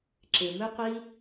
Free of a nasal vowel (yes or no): yes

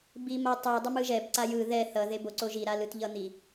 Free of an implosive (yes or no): yes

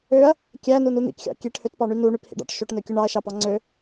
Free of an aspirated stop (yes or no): yes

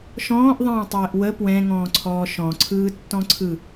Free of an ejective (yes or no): yes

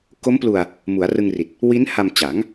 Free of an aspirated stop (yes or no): yes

